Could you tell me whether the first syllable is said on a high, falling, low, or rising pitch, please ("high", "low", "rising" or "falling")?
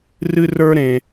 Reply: high